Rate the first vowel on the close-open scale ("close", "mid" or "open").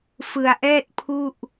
close